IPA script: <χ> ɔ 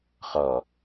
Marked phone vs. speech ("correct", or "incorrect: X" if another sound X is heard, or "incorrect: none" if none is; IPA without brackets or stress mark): correct